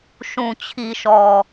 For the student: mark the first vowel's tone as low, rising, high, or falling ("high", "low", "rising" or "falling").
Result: low